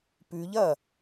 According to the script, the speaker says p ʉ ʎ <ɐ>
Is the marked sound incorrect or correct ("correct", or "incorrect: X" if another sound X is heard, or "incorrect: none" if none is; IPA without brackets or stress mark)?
correct